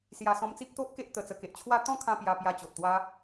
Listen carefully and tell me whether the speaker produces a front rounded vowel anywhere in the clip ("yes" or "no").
no